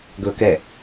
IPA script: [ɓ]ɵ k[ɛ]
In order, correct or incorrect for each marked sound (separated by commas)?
incorrect, correct